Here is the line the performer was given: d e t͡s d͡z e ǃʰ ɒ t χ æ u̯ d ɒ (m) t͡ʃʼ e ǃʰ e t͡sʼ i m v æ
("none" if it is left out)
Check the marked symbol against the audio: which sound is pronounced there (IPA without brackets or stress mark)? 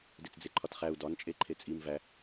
n